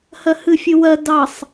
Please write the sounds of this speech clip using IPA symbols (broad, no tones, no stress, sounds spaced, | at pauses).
h ɜ h ɨ fʲ ɨ w ɜ d ɑ sˤ